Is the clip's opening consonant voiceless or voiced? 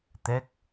voiceless